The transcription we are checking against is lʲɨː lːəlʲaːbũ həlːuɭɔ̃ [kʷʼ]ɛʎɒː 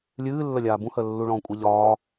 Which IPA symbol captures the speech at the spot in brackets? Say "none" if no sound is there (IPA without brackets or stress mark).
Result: kʷʼ